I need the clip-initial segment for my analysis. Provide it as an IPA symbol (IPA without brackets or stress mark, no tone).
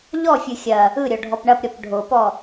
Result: ʎ